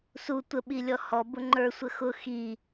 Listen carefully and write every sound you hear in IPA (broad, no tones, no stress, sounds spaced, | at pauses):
s u tʷ ə ɓ i lʲ ɔ h ɔ b ʊ ŋ͡ǃ ə˞ sʷ ə x ʊ x i